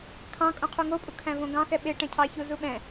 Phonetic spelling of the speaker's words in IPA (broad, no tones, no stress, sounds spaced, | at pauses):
kʰ ɑ̃ kʼ õ qʰ u ŋ o pʼ u kʰ æ̃ v õ ɡ ɑ̃ x ɛ ɓ e ʈ ɛ̃ cʰ ɑ ç u z u ɓ ɛ̃